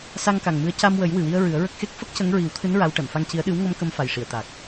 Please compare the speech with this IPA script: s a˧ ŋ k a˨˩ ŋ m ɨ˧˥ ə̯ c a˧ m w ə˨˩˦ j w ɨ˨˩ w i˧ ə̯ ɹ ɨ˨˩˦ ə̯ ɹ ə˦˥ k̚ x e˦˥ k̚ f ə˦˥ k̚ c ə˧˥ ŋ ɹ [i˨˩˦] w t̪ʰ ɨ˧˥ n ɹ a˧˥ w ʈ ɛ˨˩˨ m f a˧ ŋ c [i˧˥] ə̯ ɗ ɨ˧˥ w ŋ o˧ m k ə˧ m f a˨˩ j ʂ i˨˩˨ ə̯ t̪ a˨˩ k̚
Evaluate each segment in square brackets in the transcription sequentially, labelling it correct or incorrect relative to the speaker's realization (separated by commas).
correct, correct